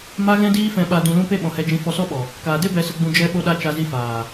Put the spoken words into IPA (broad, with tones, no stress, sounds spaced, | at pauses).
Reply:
m a˧ ɣ ɛ̃˧ d iː˧ f ɛ̃˨ ɓ a˨ d ũ˨ l ũ˧ p e˦ ɓ ɔ̃˨ h ɛ˧ d͡ʒ ĩ˧ f ɔ˧ s ɔ˦ ɓ ɔ˨ | k aː˨ d e˦ b ɛ˨ s ə˨ ɡ͡b ũ˨ d͡ʒ ɛ˧ ɓ o˧ ɗ a˧ t͡ʃ a˧ z i˧ f aː˨